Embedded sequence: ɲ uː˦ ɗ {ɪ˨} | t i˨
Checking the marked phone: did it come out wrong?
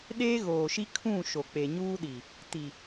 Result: yes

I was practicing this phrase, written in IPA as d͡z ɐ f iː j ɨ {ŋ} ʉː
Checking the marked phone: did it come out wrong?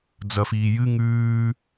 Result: no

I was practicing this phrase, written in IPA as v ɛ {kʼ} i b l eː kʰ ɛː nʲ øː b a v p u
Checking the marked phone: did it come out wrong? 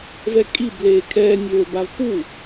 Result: no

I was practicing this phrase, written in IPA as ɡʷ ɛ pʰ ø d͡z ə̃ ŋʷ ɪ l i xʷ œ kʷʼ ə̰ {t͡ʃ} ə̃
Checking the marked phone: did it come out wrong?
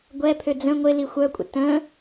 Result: yes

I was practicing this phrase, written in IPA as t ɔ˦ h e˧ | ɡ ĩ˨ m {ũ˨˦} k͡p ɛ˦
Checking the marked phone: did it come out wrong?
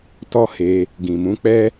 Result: no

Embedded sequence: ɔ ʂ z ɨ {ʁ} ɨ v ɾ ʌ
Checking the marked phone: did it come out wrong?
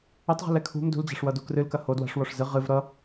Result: no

